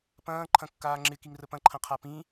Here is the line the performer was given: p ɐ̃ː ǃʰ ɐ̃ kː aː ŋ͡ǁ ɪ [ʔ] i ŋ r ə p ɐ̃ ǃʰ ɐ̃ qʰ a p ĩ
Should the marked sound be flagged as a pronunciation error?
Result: yes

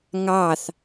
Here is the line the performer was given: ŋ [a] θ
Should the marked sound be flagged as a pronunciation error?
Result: yes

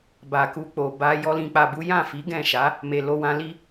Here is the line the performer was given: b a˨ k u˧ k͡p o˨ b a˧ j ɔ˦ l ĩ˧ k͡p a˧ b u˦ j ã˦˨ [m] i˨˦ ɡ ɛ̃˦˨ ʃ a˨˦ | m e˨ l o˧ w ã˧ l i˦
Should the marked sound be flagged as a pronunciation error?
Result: yes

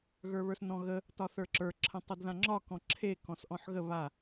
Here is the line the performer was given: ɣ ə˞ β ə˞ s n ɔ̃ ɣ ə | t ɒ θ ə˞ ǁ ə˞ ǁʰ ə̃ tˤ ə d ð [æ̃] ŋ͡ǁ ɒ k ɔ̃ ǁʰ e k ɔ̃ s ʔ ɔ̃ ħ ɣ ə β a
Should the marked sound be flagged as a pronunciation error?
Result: yes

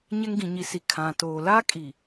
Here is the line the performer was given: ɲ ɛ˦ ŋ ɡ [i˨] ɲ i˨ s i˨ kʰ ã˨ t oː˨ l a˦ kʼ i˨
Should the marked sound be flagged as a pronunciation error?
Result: yes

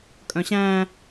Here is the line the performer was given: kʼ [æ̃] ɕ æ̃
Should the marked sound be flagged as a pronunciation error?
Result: yes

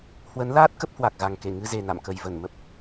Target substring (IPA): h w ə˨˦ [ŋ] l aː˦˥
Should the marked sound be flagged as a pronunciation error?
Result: yes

